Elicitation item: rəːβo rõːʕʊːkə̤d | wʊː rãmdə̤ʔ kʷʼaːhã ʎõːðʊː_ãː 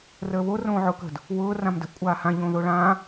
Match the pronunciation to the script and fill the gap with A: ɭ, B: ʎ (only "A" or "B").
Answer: A